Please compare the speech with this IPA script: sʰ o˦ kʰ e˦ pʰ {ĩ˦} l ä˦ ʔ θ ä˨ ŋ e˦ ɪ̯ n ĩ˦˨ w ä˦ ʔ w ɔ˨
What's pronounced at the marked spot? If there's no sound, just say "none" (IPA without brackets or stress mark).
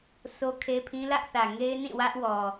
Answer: ĩ˦